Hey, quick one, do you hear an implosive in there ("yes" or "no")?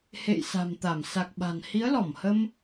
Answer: yes